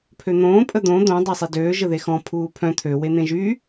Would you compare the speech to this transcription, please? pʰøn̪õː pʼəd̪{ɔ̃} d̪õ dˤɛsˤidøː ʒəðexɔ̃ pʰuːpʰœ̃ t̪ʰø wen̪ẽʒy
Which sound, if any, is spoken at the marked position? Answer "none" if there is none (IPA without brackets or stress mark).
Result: õ